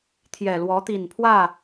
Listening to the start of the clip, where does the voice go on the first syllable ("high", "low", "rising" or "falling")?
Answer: low